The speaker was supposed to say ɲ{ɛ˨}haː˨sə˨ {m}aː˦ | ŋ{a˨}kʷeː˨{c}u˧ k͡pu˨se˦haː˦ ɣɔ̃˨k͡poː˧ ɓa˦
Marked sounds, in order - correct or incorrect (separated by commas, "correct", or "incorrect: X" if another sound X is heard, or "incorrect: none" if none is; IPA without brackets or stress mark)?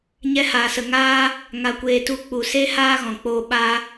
incorrect: ɛ˧, incorrect: ŋ, correct, incorrect: t